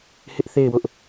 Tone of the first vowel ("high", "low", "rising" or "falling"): high